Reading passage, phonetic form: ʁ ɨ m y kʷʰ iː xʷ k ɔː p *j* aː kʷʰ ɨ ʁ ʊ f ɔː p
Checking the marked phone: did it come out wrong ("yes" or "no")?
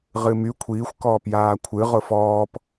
no